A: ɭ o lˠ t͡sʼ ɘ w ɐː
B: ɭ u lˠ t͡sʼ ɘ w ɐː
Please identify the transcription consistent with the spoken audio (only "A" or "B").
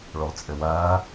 A